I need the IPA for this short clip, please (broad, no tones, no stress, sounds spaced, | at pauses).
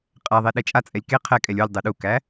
qʼ æ ðˤ e ɗ ɛ t͡ʃʼ a t͡sʼ ɛ lʲ k e qʰ ɛ kʼ ɛ lʲ u lʲ dˤ ɛ ɗ u k æ